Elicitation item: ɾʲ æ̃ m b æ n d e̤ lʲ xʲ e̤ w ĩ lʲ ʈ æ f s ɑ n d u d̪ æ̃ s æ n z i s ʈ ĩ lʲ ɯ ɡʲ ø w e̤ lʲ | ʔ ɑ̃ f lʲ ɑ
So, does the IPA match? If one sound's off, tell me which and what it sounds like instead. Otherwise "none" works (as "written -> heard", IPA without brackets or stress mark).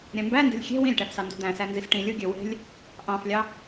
none